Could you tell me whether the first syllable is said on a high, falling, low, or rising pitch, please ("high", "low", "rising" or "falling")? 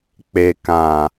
low